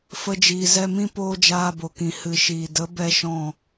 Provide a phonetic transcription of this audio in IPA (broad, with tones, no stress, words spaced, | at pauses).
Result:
fə˦d͡ʒiː˧ zɛ˧mĩ˦ poː˦d͡ʒaː˧bo˨kĩ˨ hɨ˨ʃiː˨də˨˦ bɛ˦ʃɔ̃˦˨